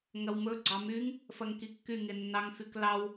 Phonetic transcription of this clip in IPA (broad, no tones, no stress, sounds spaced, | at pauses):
ŋ ɐ w m ɵ ɡ͡ǀ ɑ m y ŋ | f ɐ ŋ k i kː y ŋ e nː ɑ ŋ f y k l ɑ w